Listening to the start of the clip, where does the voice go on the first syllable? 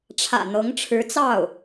low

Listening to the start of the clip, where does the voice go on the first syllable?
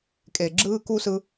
low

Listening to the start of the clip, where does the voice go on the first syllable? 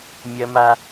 high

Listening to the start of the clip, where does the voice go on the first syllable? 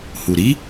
low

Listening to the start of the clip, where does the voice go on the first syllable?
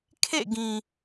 falling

